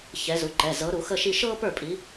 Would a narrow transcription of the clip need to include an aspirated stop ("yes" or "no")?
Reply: no